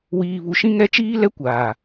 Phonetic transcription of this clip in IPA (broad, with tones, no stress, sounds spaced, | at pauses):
w iː˨ β u˨ ʃ ĩ˦ ŋ ɛ˦ t͡ʃ iː˦ l ɛ˦ kʷ aː˨